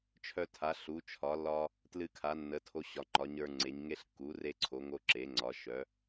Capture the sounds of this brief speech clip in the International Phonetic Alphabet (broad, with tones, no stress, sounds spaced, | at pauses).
t͡ʃʰ œ˧ tʰ a˩˧ ɬ u˩˧ t͡ʃʰ ɒ˩˧ lː ɒ˧ | t l ɨ˧ kʰ a˩˧ nː ə˩˧ tʰ o˧ ɕ ɒ˩˧ ŋ͡ǃ ɒ˩˧ ɲ ə˞˧ ŋ͡ǀ e˩˧ ɲ ŋ e˧ ɬ kː u˩˧ r e˧ ǀʰ o˩˧ ŋ o˧ ǁ e˩˧ ŋ͡ǀ ɒ˩˧ ʃ œ˩˧